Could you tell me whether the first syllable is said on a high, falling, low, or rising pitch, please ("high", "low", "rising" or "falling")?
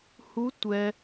rising